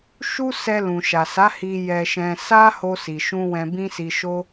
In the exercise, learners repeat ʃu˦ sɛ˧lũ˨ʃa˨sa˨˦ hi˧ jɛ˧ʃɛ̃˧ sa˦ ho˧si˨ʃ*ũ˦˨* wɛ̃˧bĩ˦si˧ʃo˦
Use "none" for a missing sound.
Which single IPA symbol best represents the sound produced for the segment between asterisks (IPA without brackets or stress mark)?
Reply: ũ˧